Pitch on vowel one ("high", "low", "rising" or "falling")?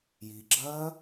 low